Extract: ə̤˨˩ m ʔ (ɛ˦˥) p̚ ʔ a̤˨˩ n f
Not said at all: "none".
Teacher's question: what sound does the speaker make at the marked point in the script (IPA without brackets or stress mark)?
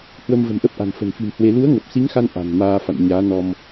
ə˦˥